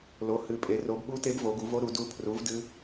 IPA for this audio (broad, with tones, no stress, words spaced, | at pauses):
lo˨˦hɨ˨˦pʼe˨˦ ro˨˦bɓu˦˥te˦˥b vo˨˦ɡu˨˦vo˦˥ɾu˨˦ du˦˥ pʰru˨˦v dɨ˦˥